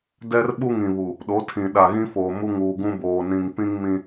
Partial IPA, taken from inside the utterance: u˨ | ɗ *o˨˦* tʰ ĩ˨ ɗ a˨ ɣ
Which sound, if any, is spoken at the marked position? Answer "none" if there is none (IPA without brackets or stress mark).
o˨˦